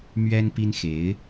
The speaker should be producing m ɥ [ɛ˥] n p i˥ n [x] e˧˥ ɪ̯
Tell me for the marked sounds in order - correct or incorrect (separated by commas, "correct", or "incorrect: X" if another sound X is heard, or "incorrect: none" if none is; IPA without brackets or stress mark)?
correct, correct